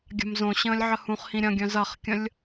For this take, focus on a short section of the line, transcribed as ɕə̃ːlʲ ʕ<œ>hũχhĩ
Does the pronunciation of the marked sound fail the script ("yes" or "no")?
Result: yes